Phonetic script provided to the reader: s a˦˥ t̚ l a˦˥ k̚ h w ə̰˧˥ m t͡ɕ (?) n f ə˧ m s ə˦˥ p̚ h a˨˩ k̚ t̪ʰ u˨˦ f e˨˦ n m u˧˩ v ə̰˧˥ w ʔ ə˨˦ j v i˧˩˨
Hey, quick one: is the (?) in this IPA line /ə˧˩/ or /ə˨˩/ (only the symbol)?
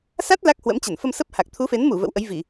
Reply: ə˧˩